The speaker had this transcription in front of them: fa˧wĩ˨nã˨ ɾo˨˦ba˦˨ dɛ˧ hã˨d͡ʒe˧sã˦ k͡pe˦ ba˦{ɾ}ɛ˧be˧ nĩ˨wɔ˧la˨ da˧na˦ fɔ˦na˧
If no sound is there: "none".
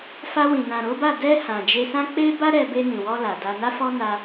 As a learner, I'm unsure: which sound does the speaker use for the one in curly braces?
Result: ɾ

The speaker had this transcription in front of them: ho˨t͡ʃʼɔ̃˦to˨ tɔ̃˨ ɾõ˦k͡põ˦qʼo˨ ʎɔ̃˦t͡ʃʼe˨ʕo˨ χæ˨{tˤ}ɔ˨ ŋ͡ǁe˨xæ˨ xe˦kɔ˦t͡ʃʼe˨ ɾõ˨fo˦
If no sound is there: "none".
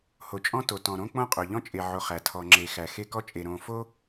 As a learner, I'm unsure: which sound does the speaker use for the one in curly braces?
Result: tʰ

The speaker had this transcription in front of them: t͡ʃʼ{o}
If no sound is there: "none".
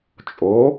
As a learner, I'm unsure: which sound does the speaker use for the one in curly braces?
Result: o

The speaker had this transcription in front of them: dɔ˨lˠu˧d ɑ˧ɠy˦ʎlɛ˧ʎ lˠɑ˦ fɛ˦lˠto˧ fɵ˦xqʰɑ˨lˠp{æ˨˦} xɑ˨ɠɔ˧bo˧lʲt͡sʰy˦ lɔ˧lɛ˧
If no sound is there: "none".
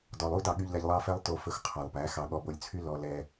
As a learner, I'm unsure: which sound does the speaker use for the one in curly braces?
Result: æ˨˦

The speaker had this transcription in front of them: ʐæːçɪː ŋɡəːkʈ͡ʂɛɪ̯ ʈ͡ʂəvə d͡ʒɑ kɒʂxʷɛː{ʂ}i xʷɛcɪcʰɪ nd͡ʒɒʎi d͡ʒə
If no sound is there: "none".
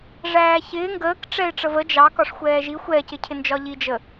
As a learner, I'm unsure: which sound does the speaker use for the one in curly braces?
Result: ʒ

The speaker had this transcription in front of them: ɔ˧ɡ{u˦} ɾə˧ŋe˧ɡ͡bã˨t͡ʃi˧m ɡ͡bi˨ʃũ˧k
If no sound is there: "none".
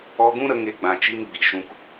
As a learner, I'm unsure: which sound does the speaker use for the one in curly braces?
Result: ũ˦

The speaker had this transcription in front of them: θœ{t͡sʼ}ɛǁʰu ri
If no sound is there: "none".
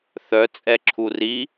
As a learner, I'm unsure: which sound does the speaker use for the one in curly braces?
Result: t͡sʼ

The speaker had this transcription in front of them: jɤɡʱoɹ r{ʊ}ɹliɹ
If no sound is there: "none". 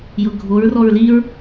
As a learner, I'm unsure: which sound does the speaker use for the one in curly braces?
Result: ɔ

